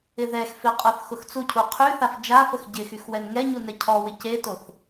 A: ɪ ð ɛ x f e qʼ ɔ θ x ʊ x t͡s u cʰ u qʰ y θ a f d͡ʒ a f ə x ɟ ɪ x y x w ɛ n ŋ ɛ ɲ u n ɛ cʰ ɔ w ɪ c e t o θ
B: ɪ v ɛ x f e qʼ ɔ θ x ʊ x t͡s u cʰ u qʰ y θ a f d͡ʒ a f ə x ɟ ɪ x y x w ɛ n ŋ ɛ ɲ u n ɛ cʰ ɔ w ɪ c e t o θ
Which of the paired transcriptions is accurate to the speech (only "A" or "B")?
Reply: A